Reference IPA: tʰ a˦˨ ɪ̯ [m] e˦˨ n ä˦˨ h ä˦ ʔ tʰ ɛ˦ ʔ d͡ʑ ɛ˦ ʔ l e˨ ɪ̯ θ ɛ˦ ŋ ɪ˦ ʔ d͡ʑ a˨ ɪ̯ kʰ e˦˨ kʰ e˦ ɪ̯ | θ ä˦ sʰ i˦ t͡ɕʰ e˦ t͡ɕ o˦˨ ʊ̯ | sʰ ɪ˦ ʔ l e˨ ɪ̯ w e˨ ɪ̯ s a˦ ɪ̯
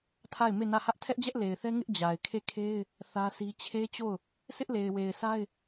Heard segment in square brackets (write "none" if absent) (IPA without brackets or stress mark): m